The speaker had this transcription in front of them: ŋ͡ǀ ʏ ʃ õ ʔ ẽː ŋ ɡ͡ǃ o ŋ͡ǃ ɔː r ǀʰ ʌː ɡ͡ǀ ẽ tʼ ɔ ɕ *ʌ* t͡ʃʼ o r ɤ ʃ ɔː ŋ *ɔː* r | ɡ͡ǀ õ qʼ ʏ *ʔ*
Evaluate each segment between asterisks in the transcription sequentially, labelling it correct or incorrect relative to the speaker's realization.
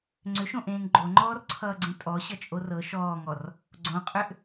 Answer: correct, incorrect, correct

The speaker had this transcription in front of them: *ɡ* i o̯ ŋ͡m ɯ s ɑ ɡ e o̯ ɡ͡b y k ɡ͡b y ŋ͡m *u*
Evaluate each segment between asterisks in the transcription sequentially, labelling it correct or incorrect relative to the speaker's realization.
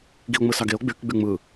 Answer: correct, incorrect

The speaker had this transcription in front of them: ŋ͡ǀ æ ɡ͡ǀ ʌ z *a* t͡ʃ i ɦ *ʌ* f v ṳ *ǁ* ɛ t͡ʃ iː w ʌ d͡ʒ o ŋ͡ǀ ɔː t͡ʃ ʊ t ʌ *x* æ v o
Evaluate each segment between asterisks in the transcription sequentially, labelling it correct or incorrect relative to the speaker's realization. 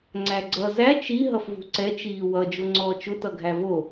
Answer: incorrect, correct, incorrect, incorrect

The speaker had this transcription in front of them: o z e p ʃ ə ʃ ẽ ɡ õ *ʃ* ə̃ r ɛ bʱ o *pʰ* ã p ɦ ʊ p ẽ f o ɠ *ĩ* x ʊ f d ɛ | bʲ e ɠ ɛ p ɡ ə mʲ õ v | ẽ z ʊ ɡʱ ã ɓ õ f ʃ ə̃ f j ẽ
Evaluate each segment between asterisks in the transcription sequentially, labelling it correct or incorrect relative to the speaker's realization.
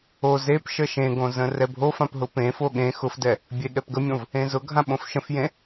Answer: incorrect, incorrect, incorrect

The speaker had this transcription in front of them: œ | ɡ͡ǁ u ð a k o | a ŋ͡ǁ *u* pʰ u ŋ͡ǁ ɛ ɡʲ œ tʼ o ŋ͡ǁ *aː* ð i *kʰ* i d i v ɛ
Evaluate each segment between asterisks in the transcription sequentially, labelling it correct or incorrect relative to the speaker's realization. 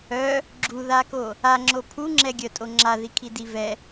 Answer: incorrect, incorrect, correct

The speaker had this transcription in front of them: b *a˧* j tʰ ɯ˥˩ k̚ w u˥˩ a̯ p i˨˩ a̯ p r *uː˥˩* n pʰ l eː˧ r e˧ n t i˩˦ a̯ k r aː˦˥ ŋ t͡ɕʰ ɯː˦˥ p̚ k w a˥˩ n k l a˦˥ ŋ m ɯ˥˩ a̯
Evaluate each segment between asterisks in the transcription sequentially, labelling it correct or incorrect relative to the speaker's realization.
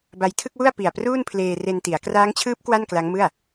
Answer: correct, correct

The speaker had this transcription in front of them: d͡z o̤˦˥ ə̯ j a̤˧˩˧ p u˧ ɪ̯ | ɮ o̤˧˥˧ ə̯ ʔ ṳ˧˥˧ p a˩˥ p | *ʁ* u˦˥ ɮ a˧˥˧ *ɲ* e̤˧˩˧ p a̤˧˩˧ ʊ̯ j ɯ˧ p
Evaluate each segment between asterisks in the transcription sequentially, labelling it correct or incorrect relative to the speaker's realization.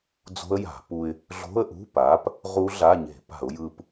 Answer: correct, correct

